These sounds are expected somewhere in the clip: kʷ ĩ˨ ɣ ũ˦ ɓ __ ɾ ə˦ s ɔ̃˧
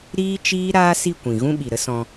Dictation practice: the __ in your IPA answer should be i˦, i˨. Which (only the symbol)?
i˨